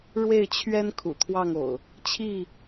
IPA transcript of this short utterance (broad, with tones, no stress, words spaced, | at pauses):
ɻwe˥˨ɪ̯t͡ɕʰɥɛ˦n kʰṵ˨˩t̪ʰwɑ˥˨ŋo̰˨˩ʊ̯ | t͡ɕʰi˥˨